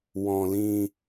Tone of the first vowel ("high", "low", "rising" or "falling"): low